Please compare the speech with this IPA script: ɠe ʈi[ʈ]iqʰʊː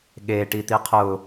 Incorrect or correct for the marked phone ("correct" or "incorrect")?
incorrect